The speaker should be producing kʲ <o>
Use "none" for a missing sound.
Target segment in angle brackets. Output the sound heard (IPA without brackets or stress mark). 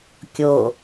o